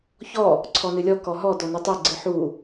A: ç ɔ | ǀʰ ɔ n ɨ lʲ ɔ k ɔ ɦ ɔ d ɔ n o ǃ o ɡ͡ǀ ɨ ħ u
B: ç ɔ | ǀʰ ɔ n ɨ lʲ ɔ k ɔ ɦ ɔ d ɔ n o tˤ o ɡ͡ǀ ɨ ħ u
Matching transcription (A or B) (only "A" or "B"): B